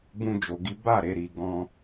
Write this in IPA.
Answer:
b ũ˦ d͡ʒ o˧ ɡ i˦ b a˦˨ ɾ e˧ ɾ i˧ ɡ ɔ̃˦

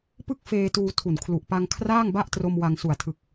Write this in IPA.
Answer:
p ɯ˥˩ k̚ f eː˧ t uː˧ tʰ u˨˩ n kʰ l u˨˩ ʔ p a˧ ŋ kʰ r aː˥˩ ŋ b a˥˩ ʔ t r o˧ m w a˧ ŋ s u˨˩ a̯ tʰ ɯ˨˩ k̚

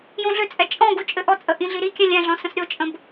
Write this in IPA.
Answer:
j õ ɮ ʏ t͡sʼ ɛ t͡ʃʼ ɔ̃ ɡ u t͡ʃʼ ɘ ʔ ɔ t͡sʼ ə ʔ ĩ ɮ i ɾ i kʲ ɛ̃ lʲ ɛ̃ ɮ ɔ̃ s ə̃ s ɾʲ o t͡ʃʼ ə̃ b

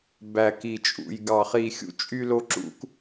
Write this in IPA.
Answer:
b æ˧˩ k i˧˩ t͡ʃʼ ṵ˧˩ j ɡ ɑ˧˩ χ i˧˩ xʲ ṵ˦ t͡ʃʼ y˦ l o˦ ǁ ṵ˦ k

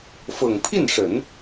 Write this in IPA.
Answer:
f ɤ˨˩ ŋ pʰ i˥˩ n ʂ ə˨˩˦ n

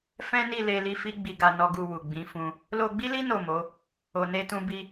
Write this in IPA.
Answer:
f ɛ̃˦ n i˦˨ l e˧ l i˧ f i˦ ɡ͡b i˧ ɡ a˧ n ɔ˧ ɡ u˧ w u˨ ɡ͡b ĩ˨˦ f ũ˦ | l o˧ ɡ͡b i˦ l i˦ n o˦˨ m o˨˦ | o˧ n e˦ t ũ˦ b i˦

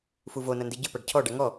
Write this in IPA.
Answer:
f u v o n ɐ n d i ɟ ɨ p a ɖ cʰ ɔ ɖ a ŋ ɔ

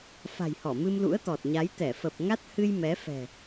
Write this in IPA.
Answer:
f a̤˨˩ j h ɔ˧˩ m ɨ˧ m l ṵ˧˥ ə̯ t̪ ɔ˨˩ t̚ ɲ a˨˦ j t̪ ɛ˧˩ f ə˨˩ p̚ ŋ a˦˥ t̚ h ɨ˧ j m ɛ˨˦ f ɛ̤˨˩

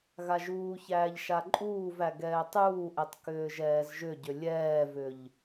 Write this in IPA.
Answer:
ɣ a ʒ uː ç æː ʎ ʃ a ǃʼ uː v æ ɡ ɛː tˤ uː ʔ ɛ tˤ k ʏː ʒ ɛː z ʒ ʏ ɟ ʏ lʲ ɛː v ʏ ʎ

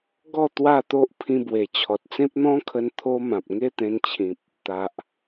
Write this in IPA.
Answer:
ɡ ɔ˥˧ t̪ w a˥˧ t̪ o˦ ʔ pʰ ĩ˧ b w e˨˩ t͡ɕʰ ɔ˨ t̚ t͡s ẽ˦ p̚ n̪ ɔ̃˦ kʰ ə˧ n t̪ʰ o˦ m ã˨ p̚ ŋ e˥˧ t̪ ẽ˧ n t͡ɕʰ ĩ˨ p̚ | t̪ a˨ ʔ

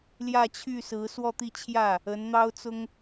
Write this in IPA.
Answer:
l j ä˥˧ t͡ɕʰ y˥˩ s ɹ̩˧˥ s w ɔ˥˧ t̪ i˥˧ t͡ɕʰ j ä˥˩ | ə˧˥ n n̪ ɑ˥ ʊ̯ t͡s ʊ˥ ŋ

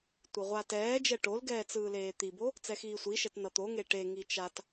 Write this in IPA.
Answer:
tʷ ɯ ʁʷ a t ɛː d͡ʒ ɛ ʈ o l ɡ ɛː t͡s ɯː l eː t̪ i b o | t͡s ɛ x iː sʷ i ʃ ɛ t n ʌ t̪ o ŋ e ʈ e ŋ i t͡ʃ a t

